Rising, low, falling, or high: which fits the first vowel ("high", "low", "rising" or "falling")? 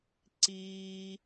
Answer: high